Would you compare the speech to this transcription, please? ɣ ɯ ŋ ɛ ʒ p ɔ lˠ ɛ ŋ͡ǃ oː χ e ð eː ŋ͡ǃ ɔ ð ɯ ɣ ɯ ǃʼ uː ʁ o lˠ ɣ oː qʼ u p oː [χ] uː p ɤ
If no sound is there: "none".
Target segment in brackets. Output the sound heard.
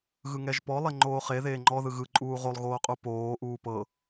ʔ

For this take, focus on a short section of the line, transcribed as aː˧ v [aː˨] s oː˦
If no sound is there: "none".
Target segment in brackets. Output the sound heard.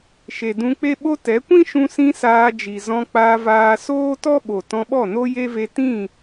aː˧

